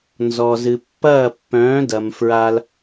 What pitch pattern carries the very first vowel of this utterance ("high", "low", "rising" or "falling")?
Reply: low